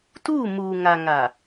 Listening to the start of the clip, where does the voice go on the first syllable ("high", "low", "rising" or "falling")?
falling